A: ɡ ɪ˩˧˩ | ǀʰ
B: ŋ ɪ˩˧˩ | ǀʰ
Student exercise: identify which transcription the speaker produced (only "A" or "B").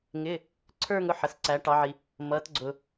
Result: B